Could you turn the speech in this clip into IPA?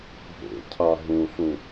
bʱ ḛ cʰ a ɦ ũ ɬ ũ

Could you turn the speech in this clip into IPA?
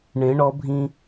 ɳ ẽ˩˧ ɳ ɔ˩˧ bʱ ĩ˧

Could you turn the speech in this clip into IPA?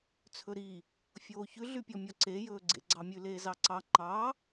t͡sʰ ɵ ɾ i | fʲ oː ç ʉ ɮ y pʲ ɔ mʲ ɔ ǀ e j ɵː ɡ͡ǀ ḛ ɡ͡ǀ ɑ mʲ ʉ l eː z ɑ ǀ ɑ ŋ͡ǃ ɑ

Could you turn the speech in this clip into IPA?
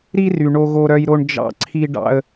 ɾ i˦ r y˨ ɳ o˦ ɣ o˦ ɾ œ˦ j ɾ o˦ ɳ d͡ʒ ɑ̰˦ ǀʰ i˦ ɖ ɑ̰˦ ə̯

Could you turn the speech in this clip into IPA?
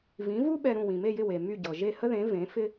v ĩ˩˥ v u˥ ɓ ɛ˧ ɾ ũ˥˩ w ĩ˩ m e˥˩ j ɪ˥˩ w e˩ m y˥˩ ɟ ɤ˩ ʒ e˥˩ h ə˥ ð ẽ˩˥ v ẽ˩˥ f ɪ˥

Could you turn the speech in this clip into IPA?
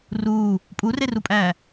r uː | pʼ u r e r u pʼ æː

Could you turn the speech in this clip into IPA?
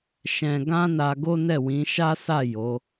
ʃ ɛ̃˧ ɡ ã˦ n a˧ ɡ o˦ n ɛ˦˨ w ĩ˨˦ ʃ a˦ s a˦˨ j o˨˦

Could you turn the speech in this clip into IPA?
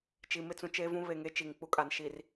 t͡ʃ i˨ m ɪ˦ t͡s ũ˨ t͡ʃ e˦ v ũ˦ β e˨ ŋ e˦ t͡ʃ i˨ ŋ k͡p u˦ kʼ a˨ n ʃ i˨ r

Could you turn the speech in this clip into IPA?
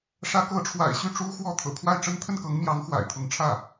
ʂ ä˧˥ k ɤ˧˥ ʈ͡ʂʰ w a̰˨˩ ɪ̯ ɕ y˥˩ ʈ͡ʂ u˥ x w ɔ˥˩ t̪ʰ ɤ̰˨˩ kʰ w a˥˩ ɪ̯ ʈ͡ʂ ə˥ n t̪ʰ ə˥˩ n k ɤ˧˥ ŋ m j ɑ˧˥ ŋ x w a̰˨˩ ɪ̯ t̪ʰ ʊ˧˥ ŋ ʈ͡ʂʰ ä˥˩

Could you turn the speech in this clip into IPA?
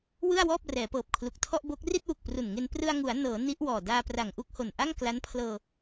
w ɯ˥˩ a̯ w ɔː˥˩ p̚ r ɛː˩˦ p ɤː˨˩ p̚ kʰ l u˨˩ k̚ tʰ ɔ˥˩ ʔ b o˦˥ k̚ r i˥˩ t̚ w u˨˩ k̚ p r u˨˩ n ŋ e˧ n p r ɯ˧ a̯ ŋ u˩˦ a̯ n ɤː˩˦ n i˦˥ ʔ w ɔː˨˩ d aː˧ p r a˨˩ ŋ ʔ u˥˩ k̚ h o˨˩ n ʔ a˥˩ ŋ k l a˦˥ n pʰ l ɤː˧

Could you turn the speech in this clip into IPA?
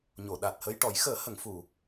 ɲ o˨˩˨ ɗ a˨˩ t̚ h ə˧ j ʈ ɔ˨˩˦ j x əː˨˩˦ h ə˨˩˨ ŋ f u˨˩˨

